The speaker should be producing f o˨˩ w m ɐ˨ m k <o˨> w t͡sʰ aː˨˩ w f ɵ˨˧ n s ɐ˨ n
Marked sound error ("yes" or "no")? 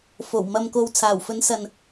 no